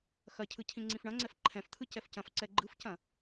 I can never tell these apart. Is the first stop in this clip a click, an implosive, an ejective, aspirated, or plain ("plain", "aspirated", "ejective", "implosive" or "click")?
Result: aspirated